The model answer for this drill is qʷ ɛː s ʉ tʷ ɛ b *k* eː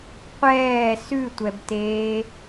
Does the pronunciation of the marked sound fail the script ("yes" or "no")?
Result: yes